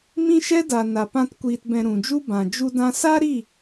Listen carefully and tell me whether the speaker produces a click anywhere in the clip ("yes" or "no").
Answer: no